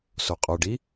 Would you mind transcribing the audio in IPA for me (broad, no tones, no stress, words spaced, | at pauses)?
soqʼoɖi